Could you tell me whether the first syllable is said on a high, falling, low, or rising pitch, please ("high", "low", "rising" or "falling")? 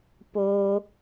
high